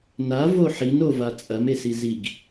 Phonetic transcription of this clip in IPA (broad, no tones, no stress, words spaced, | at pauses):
navo ħinova t͡sʼɐmesi ziɡ